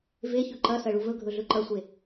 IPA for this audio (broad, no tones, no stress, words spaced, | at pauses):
veçɵ ǃɐsɐɭuv ɵɡʱɵɮɵ ǃɐsʷe